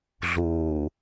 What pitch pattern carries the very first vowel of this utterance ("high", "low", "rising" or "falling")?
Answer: low